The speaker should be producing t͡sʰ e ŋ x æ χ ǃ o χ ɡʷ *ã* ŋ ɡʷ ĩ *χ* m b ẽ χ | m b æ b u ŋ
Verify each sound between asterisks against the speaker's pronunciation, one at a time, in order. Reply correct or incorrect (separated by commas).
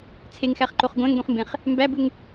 incorrect, correct